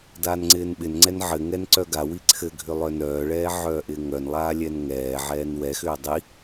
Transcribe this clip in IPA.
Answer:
daːnŋ͡ǀɪːnɓɪnŋ͡ǀɛn ʕɘŋɛn ǀœɡawi ǀʰɘɡʱʏ lˠœnœːɭɛː ʕœːʔɪːŋœnlˠaː lʲɛnŋɛːʕɛːn wɛxʏː dˤi

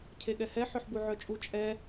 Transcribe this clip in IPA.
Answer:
cʰeɠɛhɛ ħœħbuʕœt͡ʃʼu t͡ʃʼɛ

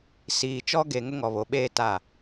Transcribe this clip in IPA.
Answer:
siː˨ t͡ʃɔ˦ɡe˨ ŋʊ˦ŋɔ˨βo˨ɓeː˦ ta˦˨

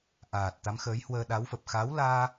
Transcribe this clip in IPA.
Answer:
ʔaː˨˩t̚ t̪a˨˦mxəː˨˦jhwəː˧ ɗa˨˦wfə˨˩p̚ xa˨˦wlaː˧

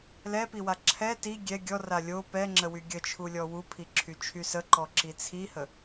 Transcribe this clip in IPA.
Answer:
lɛpiwa ǁʰɛ ti ɡʲɛ ɡʲɔra lʲo pɛŋ͡ǁəwy ɡʲət͡ʃʰulʲɔ wupʰiǁʰyt͡ʃʰy səǃɔǁi t͡sʰihə

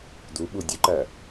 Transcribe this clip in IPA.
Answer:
du ɓudʲʊǃæ

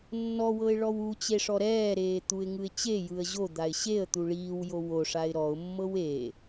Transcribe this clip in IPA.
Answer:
nːɔwɤɪ̯ ɭɔwut͡ɕe ʂɔɾɛːɾeː t̪uɪ̯ŋɯɪ̯t͡ɕejɯə̯ ʑod̪aɪ̯ ɕeə̯ t̪uɭiːwjo woʂaɪ̯ ɾɔʊ̯mːɤw e

